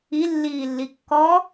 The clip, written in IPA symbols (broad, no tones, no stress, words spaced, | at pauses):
i lːiːlːikːɔ